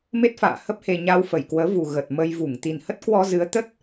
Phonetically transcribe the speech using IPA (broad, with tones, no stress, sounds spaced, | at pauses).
m e˦˥ t̚ f a̰ː˧˨ h ə˦˥ p̚ h e˧ ɲ a˧ w f ə˧˩ j k w əː˨˦ v u˨˩ ɣ ə˨˩ t̚ m ə˧ j v u˧˩ ŋ t̪ i˨˩ n h ə˦˥ t̚ k w ɔ˧ z ɨ˨˦ ə̯ t̪ ə˦˥ t̚